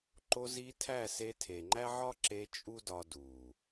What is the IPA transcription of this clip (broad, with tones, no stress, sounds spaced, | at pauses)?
ǃ o˧ z i˧ tʰ æ˦˨ s e˧ tʰ e˨ ŋ͡ǃ æ˦ ʕ ɒ˦ ǁ e˧ t͡ʃʼ u˦ d ɒ˧ d u˨